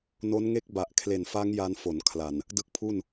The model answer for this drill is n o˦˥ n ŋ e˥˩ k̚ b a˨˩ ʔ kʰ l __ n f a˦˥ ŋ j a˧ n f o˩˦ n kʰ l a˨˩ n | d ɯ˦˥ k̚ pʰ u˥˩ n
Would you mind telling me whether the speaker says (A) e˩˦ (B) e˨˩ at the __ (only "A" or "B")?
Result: B